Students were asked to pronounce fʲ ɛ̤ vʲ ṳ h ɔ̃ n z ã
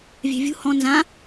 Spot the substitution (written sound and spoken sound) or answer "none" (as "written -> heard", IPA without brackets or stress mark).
fʲ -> vʲ